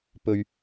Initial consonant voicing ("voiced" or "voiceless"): voiceless